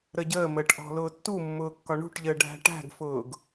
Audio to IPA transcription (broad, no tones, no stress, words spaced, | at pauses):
ɾəɟəːməːʈ ʔɔ̤lʊːtːumːʊː kːɒɳṳʈʎəː ɖʱæ̤ʈæ̤ɡfʊːɡ